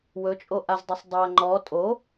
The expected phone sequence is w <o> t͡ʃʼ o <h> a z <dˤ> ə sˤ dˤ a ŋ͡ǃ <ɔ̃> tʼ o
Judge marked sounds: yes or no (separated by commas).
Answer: no, no, yes, no